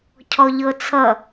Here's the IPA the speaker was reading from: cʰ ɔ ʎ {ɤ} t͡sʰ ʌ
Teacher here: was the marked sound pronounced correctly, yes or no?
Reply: yes